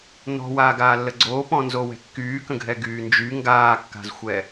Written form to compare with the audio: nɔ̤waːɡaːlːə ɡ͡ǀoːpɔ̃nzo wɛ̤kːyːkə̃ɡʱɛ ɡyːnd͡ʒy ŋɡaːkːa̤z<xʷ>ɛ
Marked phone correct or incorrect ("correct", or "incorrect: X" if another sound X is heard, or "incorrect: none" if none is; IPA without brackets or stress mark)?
correct